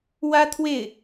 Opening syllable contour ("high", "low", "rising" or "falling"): high